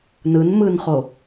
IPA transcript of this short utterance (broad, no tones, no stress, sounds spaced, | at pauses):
n ɯ n m ɯ n χ o